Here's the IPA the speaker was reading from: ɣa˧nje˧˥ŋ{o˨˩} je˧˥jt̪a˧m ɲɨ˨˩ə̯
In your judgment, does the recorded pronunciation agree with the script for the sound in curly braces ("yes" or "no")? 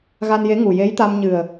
no